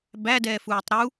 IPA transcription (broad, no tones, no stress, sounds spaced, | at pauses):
b æ d ɛː f uː tˤ ɾ u